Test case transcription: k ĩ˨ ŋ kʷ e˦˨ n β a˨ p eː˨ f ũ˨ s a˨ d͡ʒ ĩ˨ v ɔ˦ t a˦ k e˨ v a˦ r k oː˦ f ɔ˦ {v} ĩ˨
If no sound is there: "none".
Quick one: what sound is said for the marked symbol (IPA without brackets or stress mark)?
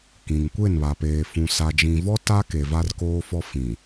f